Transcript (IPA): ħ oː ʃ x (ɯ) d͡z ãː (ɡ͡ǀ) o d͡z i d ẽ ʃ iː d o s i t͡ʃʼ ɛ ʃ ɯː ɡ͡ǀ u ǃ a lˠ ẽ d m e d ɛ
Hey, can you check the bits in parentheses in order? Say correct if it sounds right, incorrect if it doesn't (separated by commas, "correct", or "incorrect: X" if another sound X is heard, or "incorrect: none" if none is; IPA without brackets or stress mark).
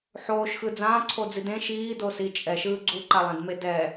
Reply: correct, incorrect: ǀʰ